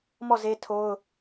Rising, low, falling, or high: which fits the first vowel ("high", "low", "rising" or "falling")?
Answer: falling